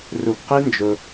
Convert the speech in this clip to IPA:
r u˧ ɡ q i˦ n d͡ʒ ʊ˧

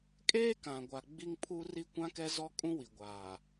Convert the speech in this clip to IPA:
kʼ eː˦ k ã˨ ɡʷ a˨ ɡ͡b i˦ ŋ pʰ u˦ r i˦ kʷ ã˦ k ɛ˦ z ɔ˦ kʼ ũ˦ w i˨ ɡʷ aː˨

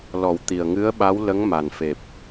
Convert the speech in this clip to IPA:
l ɔ˨˩˦ w t̪ i˨˩ ə̯ ŋ ɨ˧˥ ə̯ ɓ a˧˥ w l ə˧˥ ŋ m a˨˩ n f e˨˩ p̚

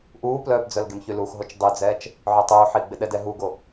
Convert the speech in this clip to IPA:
ʔ uː p l œː p d͡z œ l ɡ e m ç y l u x ɦ o t͡ʃ dˤ ø d͡z ɛː t͡ʃ | ʕ œ tˤ uː ħ iː ɡ͡b ɪ ɗ ɛ d ɛ ɦ u ɡ o

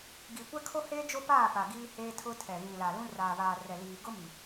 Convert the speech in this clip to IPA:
ɡ i˨ kʷ ɛ˦ kʰ o˦ h eː˦ d͡ʒ o˦ p aː˦˨ p a˨ ɡ iː˦ h eː˦ tʰ ʊ˦ tʰ ɛ˨ ɣ ĩ˨ l a˨ l ũ˦ r aː˨ β aː˨ r ɛ˨ l iː˨ ɡ ʊ˦ m i˨

